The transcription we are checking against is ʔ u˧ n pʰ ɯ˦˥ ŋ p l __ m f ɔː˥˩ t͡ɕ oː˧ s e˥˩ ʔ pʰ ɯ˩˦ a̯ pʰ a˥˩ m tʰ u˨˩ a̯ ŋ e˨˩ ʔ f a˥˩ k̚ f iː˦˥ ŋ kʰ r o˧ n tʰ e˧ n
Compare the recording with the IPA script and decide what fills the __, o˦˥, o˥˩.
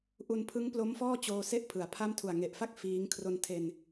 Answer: o˦˥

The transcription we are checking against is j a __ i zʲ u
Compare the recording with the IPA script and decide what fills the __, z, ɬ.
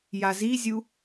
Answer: z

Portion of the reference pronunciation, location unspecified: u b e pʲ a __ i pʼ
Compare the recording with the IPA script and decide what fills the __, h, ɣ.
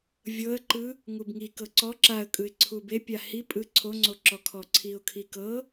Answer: h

